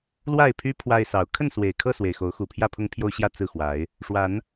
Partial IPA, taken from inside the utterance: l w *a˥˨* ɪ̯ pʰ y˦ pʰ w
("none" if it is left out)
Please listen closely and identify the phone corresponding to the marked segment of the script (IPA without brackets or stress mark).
a˥˨